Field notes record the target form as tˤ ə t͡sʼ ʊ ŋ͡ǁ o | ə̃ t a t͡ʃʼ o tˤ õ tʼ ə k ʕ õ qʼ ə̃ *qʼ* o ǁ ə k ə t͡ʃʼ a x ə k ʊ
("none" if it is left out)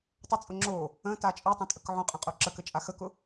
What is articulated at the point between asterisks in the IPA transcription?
qʼ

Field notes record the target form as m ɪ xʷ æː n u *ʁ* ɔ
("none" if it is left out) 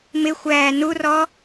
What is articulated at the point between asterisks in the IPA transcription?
r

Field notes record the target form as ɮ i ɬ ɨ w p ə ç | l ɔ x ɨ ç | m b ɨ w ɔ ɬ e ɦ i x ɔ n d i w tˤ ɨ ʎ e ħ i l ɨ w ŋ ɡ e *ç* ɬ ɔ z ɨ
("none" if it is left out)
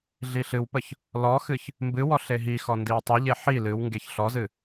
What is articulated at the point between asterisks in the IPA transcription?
ç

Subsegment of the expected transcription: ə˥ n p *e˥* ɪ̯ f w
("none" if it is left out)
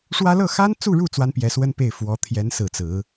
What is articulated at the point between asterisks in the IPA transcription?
e˥˩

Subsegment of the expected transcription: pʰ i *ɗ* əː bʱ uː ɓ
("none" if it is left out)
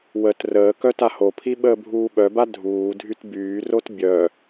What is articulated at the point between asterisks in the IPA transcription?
ɓ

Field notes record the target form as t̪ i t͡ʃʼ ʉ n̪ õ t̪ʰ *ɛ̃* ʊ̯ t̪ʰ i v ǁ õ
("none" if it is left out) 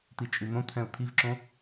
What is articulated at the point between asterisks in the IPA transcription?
ɛ̃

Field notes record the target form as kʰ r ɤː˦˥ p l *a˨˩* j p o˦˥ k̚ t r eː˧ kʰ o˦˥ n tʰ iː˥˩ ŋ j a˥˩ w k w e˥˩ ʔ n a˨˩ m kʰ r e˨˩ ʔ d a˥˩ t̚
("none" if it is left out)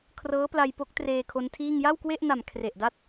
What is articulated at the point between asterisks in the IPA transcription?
a˧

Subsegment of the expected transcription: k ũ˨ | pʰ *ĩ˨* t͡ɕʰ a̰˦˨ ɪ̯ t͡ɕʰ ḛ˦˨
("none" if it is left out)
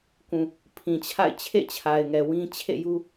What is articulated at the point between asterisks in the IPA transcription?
ĩ˨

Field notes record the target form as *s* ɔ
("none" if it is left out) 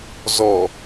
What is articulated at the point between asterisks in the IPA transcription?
z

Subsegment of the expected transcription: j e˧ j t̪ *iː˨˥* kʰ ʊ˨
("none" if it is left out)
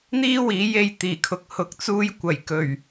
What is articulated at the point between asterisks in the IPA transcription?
iː˨˩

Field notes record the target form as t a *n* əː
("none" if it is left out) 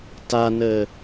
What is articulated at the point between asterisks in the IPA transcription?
n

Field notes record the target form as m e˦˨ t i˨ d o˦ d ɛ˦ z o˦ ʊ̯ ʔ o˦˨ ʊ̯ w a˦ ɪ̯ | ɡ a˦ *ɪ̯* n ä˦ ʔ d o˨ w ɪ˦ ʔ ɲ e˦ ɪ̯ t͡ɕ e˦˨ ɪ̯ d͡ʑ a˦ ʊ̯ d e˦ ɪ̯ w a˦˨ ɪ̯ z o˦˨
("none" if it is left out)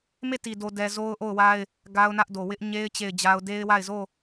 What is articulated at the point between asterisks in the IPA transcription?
ʊ̯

